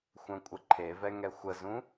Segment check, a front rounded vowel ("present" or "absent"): present